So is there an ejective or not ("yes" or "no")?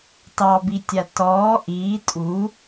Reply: yes